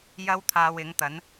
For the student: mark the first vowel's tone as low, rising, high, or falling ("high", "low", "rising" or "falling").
high